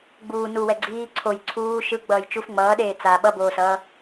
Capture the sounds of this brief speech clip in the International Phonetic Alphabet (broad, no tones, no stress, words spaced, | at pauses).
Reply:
ɡ͡buː nuwɛ ɡ͡ǀiː ǀʰoj ǀʰuː ʃɯ ɡ͡bʌːjt͡ʃuf ŋ͡mʌːɗeː t͡sa ɓʌboːsʌː